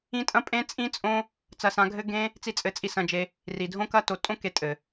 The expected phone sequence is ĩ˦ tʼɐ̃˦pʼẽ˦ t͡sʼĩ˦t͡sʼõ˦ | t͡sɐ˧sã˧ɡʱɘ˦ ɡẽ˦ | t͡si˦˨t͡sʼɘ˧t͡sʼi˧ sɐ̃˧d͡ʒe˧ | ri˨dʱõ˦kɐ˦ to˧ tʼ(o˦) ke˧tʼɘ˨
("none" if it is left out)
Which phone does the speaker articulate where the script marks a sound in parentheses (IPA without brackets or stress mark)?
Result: õ˦